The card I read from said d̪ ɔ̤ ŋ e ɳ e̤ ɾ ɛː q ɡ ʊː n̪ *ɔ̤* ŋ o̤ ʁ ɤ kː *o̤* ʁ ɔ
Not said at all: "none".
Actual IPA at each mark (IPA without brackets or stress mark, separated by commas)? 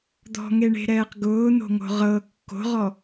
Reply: o̤, o̤